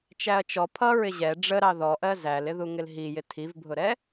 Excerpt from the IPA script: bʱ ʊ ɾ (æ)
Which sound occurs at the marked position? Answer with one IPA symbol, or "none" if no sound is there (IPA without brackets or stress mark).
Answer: ɛ